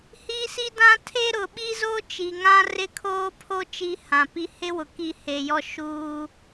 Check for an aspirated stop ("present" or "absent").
present